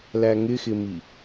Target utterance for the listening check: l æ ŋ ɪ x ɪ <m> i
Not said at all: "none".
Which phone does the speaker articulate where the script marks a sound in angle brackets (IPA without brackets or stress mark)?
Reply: m